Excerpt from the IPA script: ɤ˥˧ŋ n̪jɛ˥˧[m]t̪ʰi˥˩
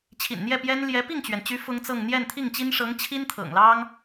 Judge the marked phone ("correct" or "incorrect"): incorrect